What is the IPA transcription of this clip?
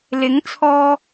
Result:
lɪ˨˥ŋt͡sʰɔː˧

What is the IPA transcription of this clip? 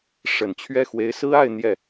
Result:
ʂə˨˩nt͡ɕʰɥɛ˥˩ xwe˧˥ɪ̯sɹ̩˥a˥˧ɪ̯ n̪jɛ˥˩

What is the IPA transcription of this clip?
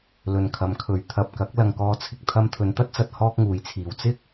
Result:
lɵ˨nkʰɐ˨˧mkʰɵ˨˧ɥ t̪ʰɐ˨p̚kɐ˨˥k̚ lɐ˨ŋkɔː˧t͡sʰɪ˨k̚ t̪ʰɐ˧mt̪ʰɵ˨˧nt̪ɐ˥t̚t͡sɐ˧t̚ hɔː˥k̚ŋuː˨˥jt͡sʰiː˨˧w t͡sɪ˥k̚

